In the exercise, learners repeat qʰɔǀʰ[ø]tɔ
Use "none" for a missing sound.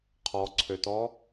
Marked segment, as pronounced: ø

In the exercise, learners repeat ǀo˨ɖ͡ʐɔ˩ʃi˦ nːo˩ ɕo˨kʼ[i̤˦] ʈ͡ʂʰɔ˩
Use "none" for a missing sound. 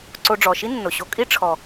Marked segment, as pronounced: i˦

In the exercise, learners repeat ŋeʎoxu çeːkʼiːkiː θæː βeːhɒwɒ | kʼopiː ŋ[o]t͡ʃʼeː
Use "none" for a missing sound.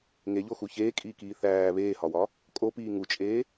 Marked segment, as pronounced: u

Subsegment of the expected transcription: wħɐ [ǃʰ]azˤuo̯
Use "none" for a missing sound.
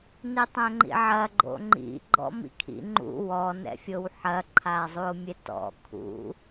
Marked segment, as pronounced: ǃʰ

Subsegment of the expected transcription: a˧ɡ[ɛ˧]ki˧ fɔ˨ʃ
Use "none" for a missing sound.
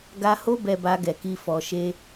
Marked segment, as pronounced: ɛ˨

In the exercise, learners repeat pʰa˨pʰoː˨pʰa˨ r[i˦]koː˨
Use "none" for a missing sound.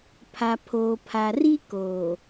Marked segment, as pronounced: i˦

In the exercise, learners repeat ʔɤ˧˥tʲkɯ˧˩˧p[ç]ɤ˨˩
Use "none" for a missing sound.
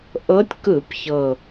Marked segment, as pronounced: ç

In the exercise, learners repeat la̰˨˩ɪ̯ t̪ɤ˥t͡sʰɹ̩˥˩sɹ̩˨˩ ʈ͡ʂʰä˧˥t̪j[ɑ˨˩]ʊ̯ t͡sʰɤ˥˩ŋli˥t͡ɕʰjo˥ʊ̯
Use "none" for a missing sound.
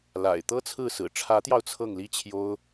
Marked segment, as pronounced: ɑ˧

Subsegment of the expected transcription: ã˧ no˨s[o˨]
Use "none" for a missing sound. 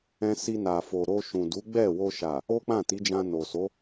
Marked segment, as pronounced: o˨˦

